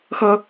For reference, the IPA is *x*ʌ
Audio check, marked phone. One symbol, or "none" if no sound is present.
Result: x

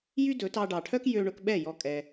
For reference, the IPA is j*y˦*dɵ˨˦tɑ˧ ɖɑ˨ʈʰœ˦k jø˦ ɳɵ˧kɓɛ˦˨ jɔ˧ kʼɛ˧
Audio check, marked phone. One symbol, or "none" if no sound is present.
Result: y˦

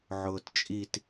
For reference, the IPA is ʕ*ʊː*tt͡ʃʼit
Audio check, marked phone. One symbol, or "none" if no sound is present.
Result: ʊː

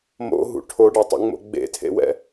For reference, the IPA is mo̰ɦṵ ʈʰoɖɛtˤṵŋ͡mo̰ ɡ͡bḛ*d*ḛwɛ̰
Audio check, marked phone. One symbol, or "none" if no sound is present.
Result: tʰ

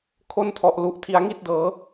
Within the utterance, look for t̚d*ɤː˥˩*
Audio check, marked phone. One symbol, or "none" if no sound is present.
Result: ɤː˦˥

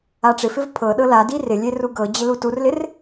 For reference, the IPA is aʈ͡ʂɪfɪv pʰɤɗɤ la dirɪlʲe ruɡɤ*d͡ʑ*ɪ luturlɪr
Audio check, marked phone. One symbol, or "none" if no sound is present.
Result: d͡ʑ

